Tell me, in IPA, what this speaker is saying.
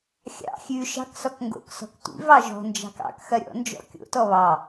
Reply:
xʲ ɑ̰ xʲ ʉ ʃ ɑ̤ k s ɔ k ŋ ɡ o̰ k s ɔ̤ k tʷ ḭ v ɑ ʒ ɔ̤ n d͡ʒ ɑ̤ k ɑ̰ k x ɐ ɾʲ ɔ̰ n d͡ʒ ɔ̰ kʲ o̰ t ɔ β ɑ

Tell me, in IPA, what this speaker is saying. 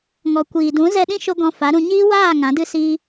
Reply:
ŋ ɔ˨ kʷ iː˨ d ũ˨˦ z ɛ˧ ɗ ĩ˦ ʃ o˧ ɡ ɔ̃˧ f a˨˦ ɾ ũ˧ ɲ iː˦ w aː˦˨ ŋ ã˨˦ d ɨ˦ s iː˦

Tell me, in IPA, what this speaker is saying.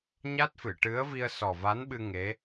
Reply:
ɲ a˦˥ t̚ f ɨ˨˩˨ ʈ ɨ˧˥ ə̯ v i˧ ə̯ s ɔ˨˩ v a˧˥ n ɓ ɨ˧ ŋ e˧˥

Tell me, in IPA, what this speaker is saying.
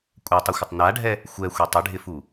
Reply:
kʷʼ ɛ tˤ ɪ xʷ ɪ tˤ n a ɖʱ ɛ | xʷ ɛ xʷ e tˤ ɪ ɖʱ ɪ f u

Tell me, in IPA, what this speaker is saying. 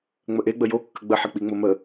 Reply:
ŋ͡m ə ʔ e ɡ͡b ə j o kː ə ɡ͡b ə ħ ɘ k͡p i ŋ͡m o m ə

